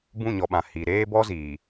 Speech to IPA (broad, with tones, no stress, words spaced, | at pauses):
bũ˦˨ɲɔ˨ɓã˨ hi˨ ɾeː˦bɔ˦ziː˨